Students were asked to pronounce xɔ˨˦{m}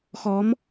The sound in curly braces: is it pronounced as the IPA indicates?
yes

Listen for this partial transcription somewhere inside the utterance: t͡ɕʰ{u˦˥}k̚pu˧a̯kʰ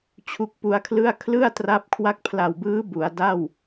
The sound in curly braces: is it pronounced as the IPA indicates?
yes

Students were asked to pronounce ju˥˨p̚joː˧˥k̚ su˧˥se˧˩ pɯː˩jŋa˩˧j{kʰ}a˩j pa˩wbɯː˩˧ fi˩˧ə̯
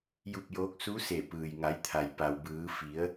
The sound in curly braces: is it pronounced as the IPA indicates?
no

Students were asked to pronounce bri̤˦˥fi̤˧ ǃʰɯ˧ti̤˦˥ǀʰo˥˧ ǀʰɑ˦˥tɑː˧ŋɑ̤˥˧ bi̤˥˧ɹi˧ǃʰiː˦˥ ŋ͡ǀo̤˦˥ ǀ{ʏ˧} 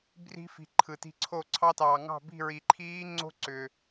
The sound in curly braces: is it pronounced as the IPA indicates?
yes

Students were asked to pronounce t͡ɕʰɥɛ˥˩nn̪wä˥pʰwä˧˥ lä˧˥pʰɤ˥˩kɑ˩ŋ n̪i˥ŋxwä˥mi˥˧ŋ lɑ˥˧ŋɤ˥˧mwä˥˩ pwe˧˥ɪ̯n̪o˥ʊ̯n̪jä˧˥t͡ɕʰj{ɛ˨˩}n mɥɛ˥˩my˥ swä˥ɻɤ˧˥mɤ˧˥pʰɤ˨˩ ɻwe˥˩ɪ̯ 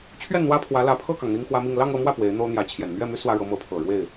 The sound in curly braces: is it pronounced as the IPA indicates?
yes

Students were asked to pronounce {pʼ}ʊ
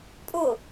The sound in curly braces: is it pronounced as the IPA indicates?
yes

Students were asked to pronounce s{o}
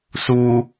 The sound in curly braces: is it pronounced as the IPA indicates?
no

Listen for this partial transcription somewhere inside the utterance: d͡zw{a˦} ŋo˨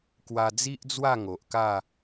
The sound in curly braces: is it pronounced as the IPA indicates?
no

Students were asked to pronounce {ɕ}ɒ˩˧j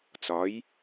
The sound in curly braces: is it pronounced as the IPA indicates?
no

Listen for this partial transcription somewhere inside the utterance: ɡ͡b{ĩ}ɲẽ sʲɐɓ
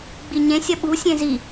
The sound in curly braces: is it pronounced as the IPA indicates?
no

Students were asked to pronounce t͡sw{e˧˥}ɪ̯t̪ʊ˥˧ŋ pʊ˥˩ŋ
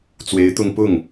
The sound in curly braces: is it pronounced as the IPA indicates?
yes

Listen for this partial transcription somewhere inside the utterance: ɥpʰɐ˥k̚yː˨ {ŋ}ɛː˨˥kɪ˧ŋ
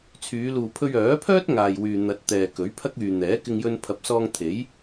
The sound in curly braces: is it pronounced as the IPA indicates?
no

